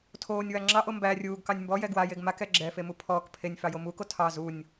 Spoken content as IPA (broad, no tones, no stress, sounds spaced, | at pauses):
tʰ oː nʲ w a ŋ͡ǁ ɑ ʔ o m b æ rʲ uː ɡ k ɑ nʲ m b ɔ j ɛ ɡ w a j e ɡ m a k ɛ ɡ͡ǁ ɛ f e m u pʰ ɔː k pʰ e nʲ f ɑ j o m uː k o tʰ ɑ z u nʲ